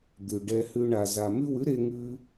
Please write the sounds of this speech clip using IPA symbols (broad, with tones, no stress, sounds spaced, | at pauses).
d̪ ʉ˨ ɖ ɛ˧ h ʉ˧ ɳ a˨ z a˨ m ʉ˦˨ w ʉ˦ ɾ e˦ ŋ ʉ˦